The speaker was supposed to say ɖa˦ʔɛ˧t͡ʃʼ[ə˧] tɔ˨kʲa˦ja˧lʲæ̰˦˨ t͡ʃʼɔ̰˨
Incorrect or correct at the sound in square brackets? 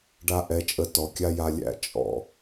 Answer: correct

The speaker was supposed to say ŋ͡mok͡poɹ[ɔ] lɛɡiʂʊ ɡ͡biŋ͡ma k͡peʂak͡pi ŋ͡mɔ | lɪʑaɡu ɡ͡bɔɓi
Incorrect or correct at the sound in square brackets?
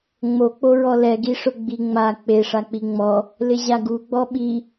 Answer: correct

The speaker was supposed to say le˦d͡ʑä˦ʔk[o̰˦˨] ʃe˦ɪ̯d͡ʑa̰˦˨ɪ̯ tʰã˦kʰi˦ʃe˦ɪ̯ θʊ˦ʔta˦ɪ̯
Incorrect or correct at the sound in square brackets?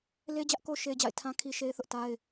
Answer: incorrect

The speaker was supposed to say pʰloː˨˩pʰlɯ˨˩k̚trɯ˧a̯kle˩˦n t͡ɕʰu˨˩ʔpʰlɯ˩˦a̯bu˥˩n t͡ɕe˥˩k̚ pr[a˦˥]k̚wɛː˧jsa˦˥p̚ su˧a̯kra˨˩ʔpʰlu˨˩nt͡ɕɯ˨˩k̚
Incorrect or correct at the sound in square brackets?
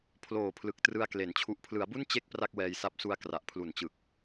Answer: incorrect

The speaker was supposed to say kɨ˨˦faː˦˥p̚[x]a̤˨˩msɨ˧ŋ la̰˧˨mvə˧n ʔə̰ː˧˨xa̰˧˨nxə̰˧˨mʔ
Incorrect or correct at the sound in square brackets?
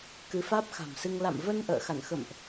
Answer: correct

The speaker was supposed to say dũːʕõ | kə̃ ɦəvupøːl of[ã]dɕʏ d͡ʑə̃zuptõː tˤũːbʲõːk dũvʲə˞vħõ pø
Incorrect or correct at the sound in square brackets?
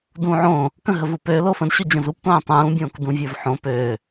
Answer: incorrect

